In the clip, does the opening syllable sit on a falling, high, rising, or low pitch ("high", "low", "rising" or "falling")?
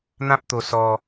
high